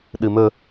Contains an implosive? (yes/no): yes